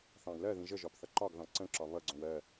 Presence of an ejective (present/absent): absent